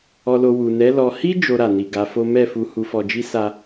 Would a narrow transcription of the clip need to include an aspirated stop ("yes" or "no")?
no